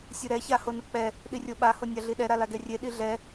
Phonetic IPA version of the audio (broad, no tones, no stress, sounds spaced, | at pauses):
sʲ ɯ ɾ ɛ ç a h o n ɯ k͡p ɛ | ɗ i rʲ o ɓ a h o nʲ a ɮ i ɗ ɛ ɾ a l a ɡ ɛ rʲ e ɗ i ɮ ɛ